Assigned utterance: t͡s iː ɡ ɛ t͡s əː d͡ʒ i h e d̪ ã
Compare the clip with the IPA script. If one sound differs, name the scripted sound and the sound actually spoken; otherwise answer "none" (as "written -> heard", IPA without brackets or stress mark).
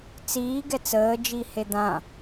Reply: none